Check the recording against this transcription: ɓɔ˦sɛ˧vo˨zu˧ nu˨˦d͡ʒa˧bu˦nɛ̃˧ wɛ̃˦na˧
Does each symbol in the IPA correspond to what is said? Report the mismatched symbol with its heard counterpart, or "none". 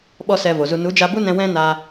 none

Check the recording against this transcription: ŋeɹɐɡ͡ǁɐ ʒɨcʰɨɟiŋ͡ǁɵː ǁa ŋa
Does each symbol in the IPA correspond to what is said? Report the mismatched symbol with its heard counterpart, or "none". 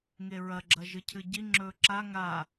none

